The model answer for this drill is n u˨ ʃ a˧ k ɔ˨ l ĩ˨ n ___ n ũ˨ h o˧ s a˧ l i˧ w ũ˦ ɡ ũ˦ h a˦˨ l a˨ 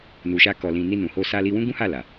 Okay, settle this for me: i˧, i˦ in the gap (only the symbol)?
i˧